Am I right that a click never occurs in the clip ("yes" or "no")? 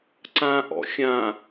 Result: no